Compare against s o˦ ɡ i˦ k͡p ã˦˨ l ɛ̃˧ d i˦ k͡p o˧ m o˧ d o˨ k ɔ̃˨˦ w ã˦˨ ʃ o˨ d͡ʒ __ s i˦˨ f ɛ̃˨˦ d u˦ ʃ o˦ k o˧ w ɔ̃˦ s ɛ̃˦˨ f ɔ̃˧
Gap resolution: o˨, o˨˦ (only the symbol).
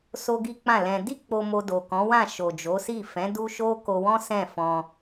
o˨˦